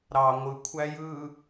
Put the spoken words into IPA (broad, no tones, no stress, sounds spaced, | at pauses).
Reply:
ɾ ɑ ŋʷ ɯ kʷʰ æ j ɯ